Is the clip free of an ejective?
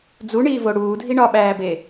yes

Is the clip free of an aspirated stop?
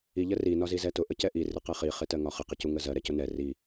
yes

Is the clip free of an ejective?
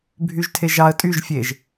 no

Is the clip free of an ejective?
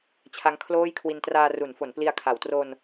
yes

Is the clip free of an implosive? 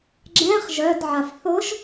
yes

